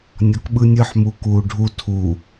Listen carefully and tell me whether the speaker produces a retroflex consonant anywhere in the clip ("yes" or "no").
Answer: yes